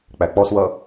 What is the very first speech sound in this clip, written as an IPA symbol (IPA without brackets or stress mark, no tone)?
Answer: k͡p